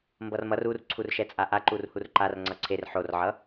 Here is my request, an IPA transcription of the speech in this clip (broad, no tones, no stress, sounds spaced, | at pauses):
m b ʌ r m ʌ r u r ǀʰ u r ʃ ɛ t͡sʼ a ʔ a ǃ u r h u r ǃ a r ŋ͡ǀ ʌ ǀʰ e r ħ o r ʕ ʌ